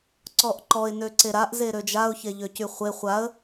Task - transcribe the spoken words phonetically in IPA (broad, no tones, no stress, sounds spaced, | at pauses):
ǀ ɔ ʔ ǃ ɔ ɪ̯ n ø ǀ e ɾ a ʔ z e ɾ ø d͡ʒ a ʊ̯ ç e ʎ ø c y χʷ e χʷ a ə̯